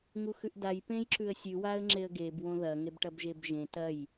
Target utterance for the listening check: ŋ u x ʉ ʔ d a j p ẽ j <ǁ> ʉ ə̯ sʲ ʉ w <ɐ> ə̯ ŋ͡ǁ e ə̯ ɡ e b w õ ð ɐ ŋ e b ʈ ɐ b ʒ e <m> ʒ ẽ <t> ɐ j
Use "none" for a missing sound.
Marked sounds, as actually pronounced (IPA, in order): ǁ, a, b, t

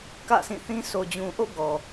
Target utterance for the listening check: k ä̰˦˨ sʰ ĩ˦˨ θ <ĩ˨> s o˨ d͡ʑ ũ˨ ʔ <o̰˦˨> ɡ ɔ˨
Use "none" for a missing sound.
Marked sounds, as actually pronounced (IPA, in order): ĩ˦, o̰˦˨

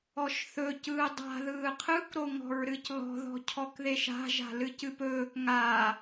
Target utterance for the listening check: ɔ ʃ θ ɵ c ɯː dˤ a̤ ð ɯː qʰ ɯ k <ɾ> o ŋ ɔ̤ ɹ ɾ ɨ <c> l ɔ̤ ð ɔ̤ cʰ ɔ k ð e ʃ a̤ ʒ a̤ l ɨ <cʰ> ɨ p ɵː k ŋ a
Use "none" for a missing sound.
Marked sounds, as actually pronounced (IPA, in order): ɾ, c, c

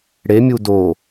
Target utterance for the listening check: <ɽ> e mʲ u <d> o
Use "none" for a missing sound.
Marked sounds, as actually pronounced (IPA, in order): ɽ, d

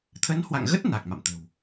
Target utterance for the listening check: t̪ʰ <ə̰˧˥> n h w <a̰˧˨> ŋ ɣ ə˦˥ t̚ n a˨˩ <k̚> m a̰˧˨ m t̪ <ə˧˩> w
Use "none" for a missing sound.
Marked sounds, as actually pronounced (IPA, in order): ə˨˦, a̰˧˨, k̚, ə̤˨˩

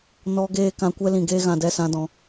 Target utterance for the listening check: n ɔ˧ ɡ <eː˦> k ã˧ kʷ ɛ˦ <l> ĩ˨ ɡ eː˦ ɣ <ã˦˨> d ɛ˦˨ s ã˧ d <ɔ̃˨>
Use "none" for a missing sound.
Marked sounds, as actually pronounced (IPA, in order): eː˧, l, ã˨, ɔ̃˨

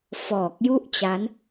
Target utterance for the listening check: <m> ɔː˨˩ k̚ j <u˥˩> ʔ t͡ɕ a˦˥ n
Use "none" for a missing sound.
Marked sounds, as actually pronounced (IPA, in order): f, u˥˩

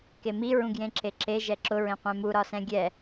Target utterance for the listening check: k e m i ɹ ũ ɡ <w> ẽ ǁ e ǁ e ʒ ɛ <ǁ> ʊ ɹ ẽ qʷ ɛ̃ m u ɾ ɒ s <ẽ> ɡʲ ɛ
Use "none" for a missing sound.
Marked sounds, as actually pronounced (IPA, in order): j, ǁ, ɛ̃

